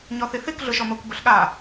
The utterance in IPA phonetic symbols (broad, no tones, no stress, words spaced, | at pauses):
ɲɔθiθik ɮʊʃɔmok bʊɬɠa